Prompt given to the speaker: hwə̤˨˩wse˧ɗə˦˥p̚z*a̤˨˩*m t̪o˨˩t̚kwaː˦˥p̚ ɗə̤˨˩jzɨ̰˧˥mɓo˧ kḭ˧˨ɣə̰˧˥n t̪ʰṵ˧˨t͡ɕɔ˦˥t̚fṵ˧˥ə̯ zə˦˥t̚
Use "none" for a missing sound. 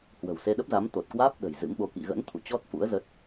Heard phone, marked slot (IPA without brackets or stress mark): a˨˦